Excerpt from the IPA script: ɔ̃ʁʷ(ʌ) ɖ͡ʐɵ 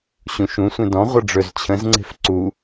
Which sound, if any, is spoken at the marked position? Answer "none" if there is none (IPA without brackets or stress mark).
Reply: ʌ